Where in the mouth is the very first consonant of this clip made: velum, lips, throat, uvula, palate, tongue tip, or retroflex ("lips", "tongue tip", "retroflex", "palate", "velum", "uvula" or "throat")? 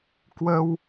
velum